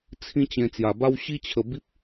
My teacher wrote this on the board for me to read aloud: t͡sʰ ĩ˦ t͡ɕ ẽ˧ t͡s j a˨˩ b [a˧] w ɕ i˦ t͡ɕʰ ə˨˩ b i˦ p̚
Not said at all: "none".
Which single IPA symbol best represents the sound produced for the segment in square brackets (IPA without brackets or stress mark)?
a˦